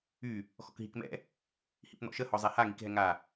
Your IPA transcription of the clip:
y | x ɔ̰ k ɦ i k m ɛ̰ | h ḭ p n̪ ɔ̰ ʃ ə h ɔ zˤ ɛ h a ŋ i k ɦ ɛ ŋ a

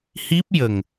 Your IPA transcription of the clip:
h i˦˥ p̚ j ə˨˩ ŋ

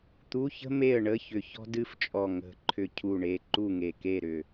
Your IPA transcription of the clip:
t̪ u˧˥˧ ç ə̤˥ m e˥˨ ə̯ ɳ ə˧˥˧ ç ʏ˧˩ ç ɔ̤˥ d ɨ˥˨ f t͡ʃʼ ɔ˧˩ ŋ ə̤˧˩ ǃʰ ʏ˧˩ cʰ u˧˩ ɳ e˧˩ ǃ u˥˨ ŋ e˧˩ k e˥˨ ɾ ʏ˧˩

